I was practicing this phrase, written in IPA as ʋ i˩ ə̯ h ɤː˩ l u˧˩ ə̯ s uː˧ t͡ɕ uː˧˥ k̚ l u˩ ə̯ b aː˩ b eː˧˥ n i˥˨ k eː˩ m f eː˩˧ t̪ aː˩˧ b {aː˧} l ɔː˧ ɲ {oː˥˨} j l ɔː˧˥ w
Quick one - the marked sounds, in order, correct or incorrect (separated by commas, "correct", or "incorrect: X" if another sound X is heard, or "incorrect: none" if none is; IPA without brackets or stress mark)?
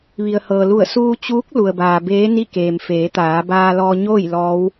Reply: correct, correct